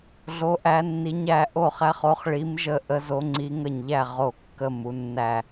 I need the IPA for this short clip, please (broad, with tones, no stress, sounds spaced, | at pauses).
ɮ o˨˦ ʔ æ˨˦ nː i˨˦ ɲ æ˨˦ ʔ o˧˩ χ æ˨˦ χ o˨˦ χ ɭ i˨˦ m ʒ ə˧˩ ʔ ə˨˦ z o˨˦ ŋ͡ǀ i˨˦ ŋ ə˧˩ ɲ ʎ æ˧˩ ʁ o˧˩ kː ə˧˩ m u˨˦ nː æ˧˩